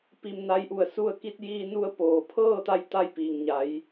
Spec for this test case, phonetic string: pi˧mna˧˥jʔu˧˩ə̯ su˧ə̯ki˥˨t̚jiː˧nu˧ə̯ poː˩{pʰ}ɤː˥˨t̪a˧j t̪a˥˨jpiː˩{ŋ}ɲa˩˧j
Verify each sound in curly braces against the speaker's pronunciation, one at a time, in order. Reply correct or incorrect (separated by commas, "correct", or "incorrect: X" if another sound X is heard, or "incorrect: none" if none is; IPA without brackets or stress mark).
correct, correct